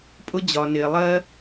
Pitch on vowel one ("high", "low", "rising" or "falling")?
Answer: high